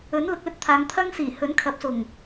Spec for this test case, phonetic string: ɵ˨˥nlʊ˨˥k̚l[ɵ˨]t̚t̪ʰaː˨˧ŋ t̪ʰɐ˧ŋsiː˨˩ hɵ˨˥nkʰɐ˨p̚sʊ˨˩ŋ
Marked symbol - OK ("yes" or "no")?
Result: yes